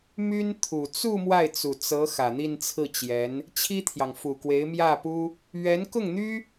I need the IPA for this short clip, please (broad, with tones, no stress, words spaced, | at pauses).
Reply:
my˥nt̪ʰu˨˩ t͡su˥˧ mwa˥˩ɪ̯t͡su˨˩t͡sɤ˧˥ xä˨˩n̪i˥˧nt͡sʰɹ̩˥˩t͡ɕjɛ˧˥n | t͡ɕʰi˥t̪ʰjɑ˨ŋ fu˨˩kwe˧˥ɪ̯mjä˥˩pu˥ | ɥɛ˧˥nkʊ˥˩ŋn̪y˥